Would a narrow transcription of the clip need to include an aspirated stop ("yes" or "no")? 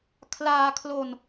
yes